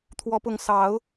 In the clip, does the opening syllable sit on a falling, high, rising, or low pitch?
rising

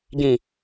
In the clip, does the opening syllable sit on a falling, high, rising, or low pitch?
low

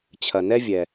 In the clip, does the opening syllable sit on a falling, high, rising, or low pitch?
low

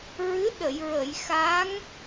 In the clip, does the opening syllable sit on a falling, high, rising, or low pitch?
rising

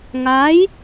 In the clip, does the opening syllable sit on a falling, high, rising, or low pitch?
rising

